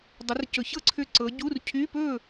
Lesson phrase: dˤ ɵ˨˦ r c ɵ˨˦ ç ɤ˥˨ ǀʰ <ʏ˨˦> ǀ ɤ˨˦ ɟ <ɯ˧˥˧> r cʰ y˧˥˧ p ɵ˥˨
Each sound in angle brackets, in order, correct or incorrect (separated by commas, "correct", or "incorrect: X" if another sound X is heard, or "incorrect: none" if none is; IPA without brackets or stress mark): incorrect: ʏ˥˨, incorrect: u˧˥˧